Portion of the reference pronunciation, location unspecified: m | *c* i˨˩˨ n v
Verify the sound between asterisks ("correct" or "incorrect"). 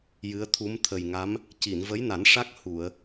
correct